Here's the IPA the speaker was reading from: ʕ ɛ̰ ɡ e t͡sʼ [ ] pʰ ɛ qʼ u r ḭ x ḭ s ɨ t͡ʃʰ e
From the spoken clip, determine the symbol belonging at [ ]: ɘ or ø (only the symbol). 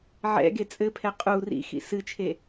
ɘ